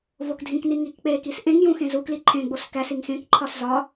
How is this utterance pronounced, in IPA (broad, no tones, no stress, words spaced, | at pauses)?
vokdʱĩkni ŋikk͡pekis ʔẽŋjũ xẽzukli ǃʰẽɡ͡bos kæ siŋxẽkǃʰɒs zɒ